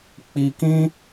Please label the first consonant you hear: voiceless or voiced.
voiceless